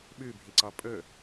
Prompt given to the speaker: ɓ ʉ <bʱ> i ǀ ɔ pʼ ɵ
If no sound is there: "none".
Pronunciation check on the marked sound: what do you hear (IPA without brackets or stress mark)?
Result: bʱ